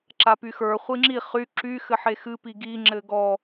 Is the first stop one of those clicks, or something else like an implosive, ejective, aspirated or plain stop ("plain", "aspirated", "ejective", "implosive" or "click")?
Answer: click